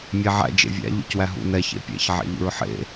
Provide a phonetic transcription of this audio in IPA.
mʲ æ ʕ æ̰ d͡ʒ ḛ vʲ æ̰ ʎ ṵ c w æ ɦ ṵ n ɛ ç ḛ pʲ ɛ̰ ç ʕ ɛ̰ ʎ ṵ ɹ ħ ḛ

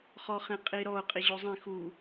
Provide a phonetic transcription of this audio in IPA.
χ ɔ χ ẽ qʼ i ɾ ɔ ʊ̯ qʼ i ʑ o zˤ ẽ x u

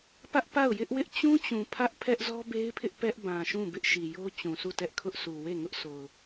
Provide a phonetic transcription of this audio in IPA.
p ä˦ ʔ p a˦˨ ʊ̯ j ɪ˦ ʔ w ɪ˦ ʔ t͡ɕ ũ˦ t͡ɕ ũ˨ pʰ ä˦ ʔ pʰ ɛ˦ ʔ z ɔ˦ b e˦ ɪ̯ pʰ ɪ˦ ʔ p ɛ˦ ʔ b ã˨ ʃ ũ˦˨ b ɪ˦ ʔ ʃ i˨ j o˦ t͡ɕ ũ˨ sʰ u˦˨ t ɛ˦ ʔ kʰ ʊ˦ ʔ sʰ u˨ w e˦˨ ŋ ʊ˦ ʔ sʰ o˨ ʊ̯

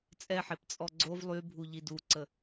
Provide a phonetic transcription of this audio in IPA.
t͡sʼ ɛ ħ e p t͡sʼ ɔ ɡ͡ǀ o v lˠ y bʱ u ʎ i d u ǀ ə

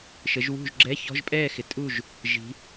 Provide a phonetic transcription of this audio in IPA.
ʃ ə˨˦ ʒ w ṳ˥˨ ʒ ɡ͡ǁ ɛ˧˥˧ ç ɔ̤˧˥˧ ʒ pʼ ɛː˥˨ x ɪ˨ tʼ u˥˨ ʒ | ʒ i̤˨˦

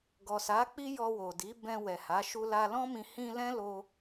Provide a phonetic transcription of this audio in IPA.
ɡ ɔ˨ s a˨˦ k͡p i˦ j ɔ˧ w o˨ d i˨˦ b ɛ̃˧ w ɛ˨ h a˨˦ ʃ u˧ l a˧ l ɔ̃˦ m ĩ˧ h ĩ˧ l ɛ̃˦ l o˧

